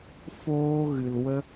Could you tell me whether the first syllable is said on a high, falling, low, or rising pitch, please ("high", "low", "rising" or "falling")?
high